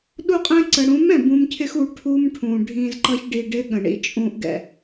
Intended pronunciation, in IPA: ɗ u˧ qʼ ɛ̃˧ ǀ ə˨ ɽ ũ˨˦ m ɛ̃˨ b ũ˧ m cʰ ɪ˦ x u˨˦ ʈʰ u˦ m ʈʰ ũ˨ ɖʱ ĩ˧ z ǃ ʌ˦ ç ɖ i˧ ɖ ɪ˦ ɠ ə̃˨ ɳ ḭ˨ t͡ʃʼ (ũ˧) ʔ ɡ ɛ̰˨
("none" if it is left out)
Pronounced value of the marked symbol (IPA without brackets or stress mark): ũ˧